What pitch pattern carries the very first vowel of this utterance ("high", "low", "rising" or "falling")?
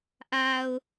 low